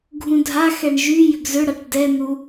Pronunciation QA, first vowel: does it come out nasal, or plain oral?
nasal